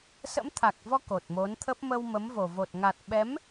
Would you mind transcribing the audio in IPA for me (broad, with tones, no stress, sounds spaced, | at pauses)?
s ə̰˧˥ m t̪ʰ a˨˩ k̚ v ɔ˧ k o˨˩ t̚ m o˨˦ n t̪ʰ ə˦˥ p̚ m ə˧ w m ə˨˦ m v o˨˩ v o˨˩ t̚ ŋ a˨˩ t̚ ɓ ɛ˨˦ m